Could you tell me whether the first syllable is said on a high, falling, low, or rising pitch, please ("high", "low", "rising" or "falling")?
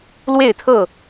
falling